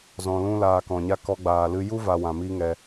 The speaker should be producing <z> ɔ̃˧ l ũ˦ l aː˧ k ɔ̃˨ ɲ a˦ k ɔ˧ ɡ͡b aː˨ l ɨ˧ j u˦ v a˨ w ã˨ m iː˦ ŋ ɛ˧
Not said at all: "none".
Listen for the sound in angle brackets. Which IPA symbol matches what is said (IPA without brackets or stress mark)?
z